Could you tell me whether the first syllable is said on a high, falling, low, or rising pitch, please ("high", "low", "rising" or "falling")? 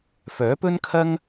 rising